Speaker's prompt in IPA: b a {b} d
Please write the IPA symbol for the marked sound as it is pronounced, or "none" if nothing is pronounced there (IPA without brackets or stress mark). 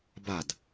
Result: none